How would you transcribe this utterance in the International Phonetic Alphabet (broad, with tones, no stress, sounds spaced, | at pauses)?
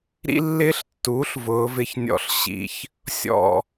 ɾ ḭ˦ lː ɪː˦ ɬ tː uː˩˥ ɬ v ʊː˩˧ v ɪ˧˩ ç nʲ ɔ̰˧˩ ɬ ɕ ḭ˩˧ ç | sʲ ɔ̰˧˩